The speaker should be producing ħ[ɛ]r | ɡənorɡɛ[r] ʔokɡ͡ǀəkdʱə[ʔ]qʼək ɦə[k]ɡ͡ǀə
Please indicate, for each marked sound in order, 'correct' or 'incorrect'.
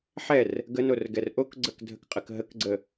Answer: correct, correct, incorrect: k, correct

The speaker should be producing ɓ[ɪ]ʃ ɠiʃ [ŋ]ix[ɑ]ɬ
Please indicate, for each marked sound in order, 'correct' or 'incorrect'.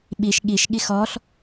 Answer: incorrect: i, incorrect: ɠ, incorrect: ɔ

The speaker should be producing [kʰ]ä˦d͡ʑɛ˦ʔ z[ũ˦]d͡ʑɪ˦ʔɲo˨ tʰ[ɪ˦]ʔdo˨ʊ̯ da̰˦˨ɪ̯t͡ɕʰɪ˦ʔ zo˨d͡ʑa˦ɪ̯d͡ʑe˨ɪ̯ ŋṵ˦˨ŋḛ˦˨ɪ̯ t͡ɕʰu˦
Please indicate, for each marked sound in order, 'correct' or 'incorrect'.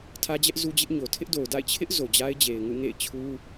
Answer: incorrect: tʰ, incorrect: u˦, correct

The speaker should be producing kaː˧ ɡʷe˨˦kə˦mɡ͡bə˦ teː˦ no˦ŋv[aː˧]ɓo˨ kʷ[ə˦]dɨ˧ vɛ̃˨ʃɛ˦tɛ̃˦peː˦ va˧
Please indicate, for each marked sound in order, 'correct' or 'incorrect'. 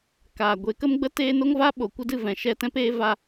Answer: incorrect: aː˦, correct

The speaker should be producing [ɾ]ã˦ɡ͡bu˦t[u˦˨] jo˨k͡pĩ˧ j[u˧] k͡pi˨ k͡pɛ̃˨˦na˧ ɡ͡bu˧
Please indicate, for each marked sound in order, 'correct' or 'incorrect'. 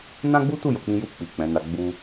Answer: incorrect: n, correct, correct

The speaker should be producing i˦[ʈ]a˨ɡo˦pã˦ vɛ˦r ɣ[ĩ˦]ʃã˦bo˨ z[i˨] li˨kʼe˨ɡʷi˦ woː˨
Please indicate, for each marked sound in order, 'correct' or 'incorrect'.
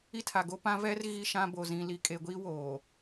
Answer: incorrect: tʰ, incorrect: i˦, incorrect: ĩ˨

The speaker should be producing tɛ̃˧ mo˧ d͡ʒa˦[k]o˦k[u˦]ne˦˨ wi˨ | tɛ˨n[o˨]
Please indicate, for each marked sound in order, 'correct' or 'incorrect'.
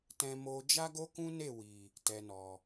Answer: incorrect: ɡ, incorrect: ũ˦, incorrect: ɔ˨

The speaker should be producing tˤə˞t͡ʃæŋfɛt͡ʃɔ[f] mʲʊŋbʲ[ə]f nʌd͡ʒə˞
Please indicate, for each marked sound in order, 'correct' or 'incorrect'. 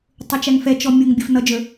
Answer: incorrect: none, correct

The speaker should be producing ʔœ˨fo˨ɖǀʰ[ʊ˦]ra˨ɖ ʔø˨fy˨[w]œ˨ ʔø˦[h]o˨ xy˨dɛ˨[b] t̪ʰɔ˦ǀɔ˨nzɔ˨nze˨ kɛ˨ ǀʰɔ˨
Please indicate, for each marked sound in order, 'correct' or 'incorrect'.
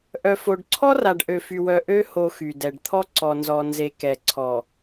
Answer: incorrect: ɔ˦, correct, correct, incorrect: ɖ

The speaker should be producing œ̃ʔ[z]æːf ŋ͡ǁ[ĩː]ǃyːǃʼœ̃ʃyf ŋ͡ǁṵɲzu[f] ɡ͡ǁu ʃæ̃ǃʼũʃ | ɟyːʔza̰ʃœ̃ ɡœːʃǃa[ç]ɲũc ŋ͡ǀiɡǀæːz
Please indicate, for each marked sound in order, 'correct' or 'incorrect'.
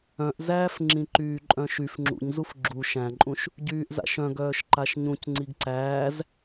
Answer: correct, incorrect: ĩ, correct, incorrect: ʃ

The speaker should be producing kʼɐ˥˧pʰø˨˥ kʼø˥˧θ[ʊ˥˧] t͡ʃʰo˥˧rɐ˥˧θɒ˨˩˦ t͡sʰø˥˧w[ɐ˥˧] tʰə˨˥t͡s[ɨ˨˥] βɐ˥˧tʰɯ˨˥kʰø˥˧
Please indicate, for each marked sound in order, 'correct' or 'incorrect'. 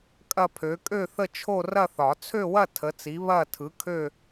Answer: incorrect: ə˥˧, correct, incorrect: i˨˥

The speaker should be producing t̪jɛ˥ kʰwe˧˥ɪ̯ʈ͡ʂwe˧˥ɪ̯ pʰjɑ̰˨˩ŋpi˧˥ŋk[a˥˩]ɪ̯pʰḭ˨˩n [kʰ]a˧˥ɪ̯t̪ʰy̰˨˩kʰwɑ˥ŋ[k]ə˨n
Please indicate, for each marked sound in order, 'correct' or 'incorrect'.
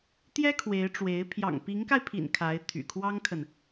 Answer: incorrect: a˧, correct, incorrect: kʰ

